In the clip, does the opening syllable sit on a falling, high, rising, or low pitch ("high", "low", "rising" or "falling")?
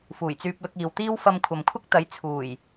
low